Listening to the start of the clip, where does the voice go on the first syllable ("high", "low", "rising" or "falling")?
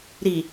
low